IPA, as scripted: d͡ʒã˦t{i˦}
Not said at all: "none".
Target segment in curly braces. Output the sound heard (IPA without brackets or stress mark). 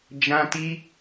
i˦